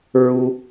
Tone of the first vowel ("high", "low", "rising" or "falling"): high